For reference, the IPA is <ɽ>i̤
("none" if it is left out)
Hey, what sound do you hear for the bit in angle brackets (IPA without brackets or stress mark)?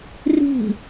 r